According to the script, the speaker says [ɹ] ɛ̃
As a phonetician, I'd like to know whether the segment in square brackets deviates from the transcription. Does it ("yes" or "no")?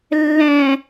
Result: yes